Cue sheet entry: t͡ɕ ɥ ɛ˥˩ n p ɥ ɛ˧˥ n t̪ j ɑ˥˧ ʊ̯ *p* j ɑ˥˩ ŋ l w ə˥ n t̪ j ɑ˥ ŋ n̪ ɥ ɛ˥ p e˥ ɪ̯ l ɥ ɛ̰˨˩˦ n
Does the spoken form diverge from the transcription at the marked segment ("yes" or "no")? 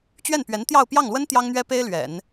no